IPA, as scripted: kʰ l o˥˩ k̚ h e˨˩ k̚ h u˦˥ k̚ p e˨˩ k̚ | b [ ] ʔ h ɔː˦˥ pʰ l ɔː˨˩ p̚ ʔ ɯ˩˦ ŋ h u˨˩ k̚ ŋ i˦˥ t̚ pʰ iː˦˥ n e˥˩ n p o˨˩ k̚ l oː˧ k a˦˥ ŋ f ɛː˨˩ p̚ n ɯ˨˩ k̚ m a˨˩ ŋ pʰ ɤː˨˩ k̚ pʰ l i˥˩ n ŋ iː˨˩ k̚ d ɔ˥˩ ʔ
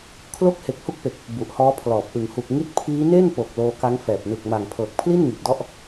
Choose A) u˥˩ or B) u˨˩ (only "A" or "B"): B